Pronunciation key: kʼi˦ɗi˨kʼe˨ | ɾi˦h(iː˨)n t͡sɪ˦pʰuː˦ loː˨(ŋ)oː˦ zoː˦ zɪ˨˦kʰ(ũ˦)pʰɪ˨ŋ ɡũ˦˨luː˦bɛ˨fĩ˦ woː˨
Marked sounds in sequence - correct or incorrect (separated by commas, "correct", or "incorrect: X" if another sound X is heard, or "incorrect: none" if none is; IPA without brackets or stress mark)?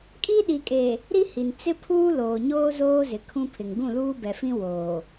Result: incorrect: i˨, incorrect: ɲ, correct